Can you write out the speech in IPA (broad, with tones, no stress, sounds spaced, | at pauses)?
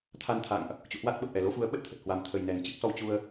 t̪ʰ a˧ n t̪ʰ a̰˧˨ ŋ ʔ | t͡ɕ ṵ˧˨ h w a˦˥ t̚ ɓ ə˨˩ p̚ ʔ ɛ˨˩ l o˨˦ f u˨˦ ə̯ ɓ ə˦˥ t̚ t̪ʰ ə˨˩ t̚ h w a˨˩ m t̪ʰ ə˨˩ j n ɛ˨˩ n t͡ɕ ɨ˦˥ k̚ s ɔ˧ w t͡ɕ u˧ ə̯